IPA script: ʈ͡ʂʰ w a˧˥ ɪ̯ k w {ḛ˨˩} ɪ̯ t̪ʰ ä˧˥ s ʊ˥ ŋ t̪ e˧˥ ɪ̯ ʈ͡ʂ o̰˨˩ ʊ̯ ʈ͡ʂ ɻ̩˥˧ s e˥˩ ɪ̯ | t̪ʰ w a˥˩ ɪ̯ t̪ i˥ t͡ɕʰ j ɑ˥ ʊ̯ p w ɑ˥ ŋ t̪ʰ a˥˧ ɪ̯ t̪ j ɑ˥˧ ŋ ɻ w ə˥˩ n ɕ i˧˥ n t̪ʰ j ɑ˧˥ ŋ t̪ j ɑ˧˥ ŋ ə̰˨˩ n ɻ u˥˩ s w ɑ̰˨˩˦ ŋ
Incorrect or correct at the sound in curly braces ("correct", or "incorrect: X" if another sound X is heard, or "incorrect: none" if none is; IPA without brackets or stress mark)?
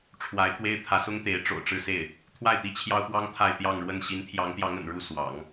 incorrect: e˥